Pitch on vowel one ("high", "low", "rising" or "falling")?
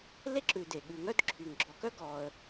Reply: high